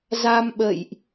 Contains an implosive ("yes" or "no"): yes